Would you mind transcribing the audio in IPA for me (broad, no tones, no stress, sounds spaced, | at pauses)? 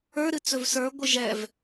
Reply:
ə˞ ɾ ɨ t͡s ɵ v s ə˞ ɡʷ ɨ ʒ ɛ v